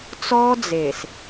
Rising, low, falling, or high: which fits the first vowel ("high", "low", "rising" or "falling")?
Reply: high